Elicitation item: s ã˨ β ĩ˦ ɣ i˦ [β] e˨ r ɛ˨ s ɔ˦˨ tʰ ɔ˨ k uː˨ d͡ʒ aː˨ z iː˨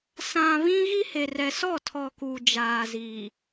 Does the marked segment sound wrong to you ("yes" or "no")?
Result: yes